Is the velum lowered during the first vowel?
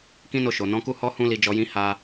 yes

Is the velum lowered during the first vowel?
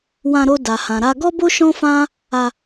yes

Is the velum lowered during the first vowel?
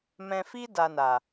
yes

